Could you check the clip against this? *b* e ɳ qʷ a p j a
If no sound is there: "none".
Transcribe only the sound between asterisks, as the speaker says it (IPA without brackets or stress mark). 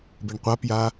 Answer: b